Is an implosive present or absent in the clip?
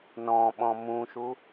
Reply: present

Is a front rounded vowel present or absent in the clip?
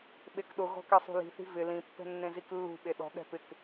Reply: absent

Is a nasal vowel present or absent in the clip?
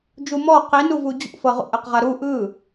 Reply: absent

